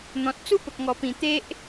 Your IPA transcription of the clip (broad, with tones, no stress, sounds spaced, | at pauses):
n̪ ɔ̃˨ t̚ t͡s u˦ p ə˨ k̚ ŋ ɔ˨˩ p ĩ˨˩ t̪ e˦ ʔ